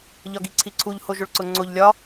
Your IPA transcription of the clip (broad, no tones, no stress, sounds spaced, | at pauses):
ʎ ɒ ɡ i ǀʰ i ǀʰ u ʎ h o ʒ o ɭ ǀ ʊ ŋ͡ǀ o ʎ lʲ ɒ